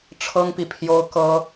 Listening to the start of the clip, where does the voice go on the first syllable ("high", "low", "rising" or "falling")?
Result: high